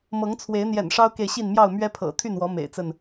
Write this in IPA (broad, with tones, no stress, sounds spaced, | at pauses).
m ɤ˨˦ ŋ t͡sʰ w e˨˦ ɪ̯ n̪ j ɛ̰˨˩ n ʂ ɑ˦ ʊ̯ k e˨ ɪ̯ ɕ i˥˨ n m j ɑ˥˨ ʊ̯ m ɥ ɛ˦ pʰ ɤ̰˨˩ t̪ʰ y˥˨ n w ɔ˨˦ m ḛ˨˩ ɪ̯ t͡s ə˥˨ n